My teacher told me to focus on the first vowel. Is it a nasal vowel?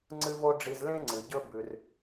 no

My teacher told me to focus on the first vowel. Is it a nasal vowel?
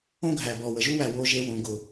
yes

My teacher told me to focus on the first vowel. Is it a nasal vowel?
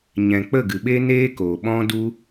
yes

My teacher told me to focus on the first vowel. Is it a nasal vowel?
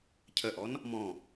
no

